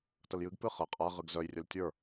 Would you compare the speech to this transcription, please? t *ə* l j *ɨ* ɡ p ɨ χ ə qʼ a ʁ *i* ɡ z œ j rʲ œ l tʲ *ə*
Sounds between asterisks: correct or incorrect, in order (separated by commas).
correct, correct, incorrect, incorrect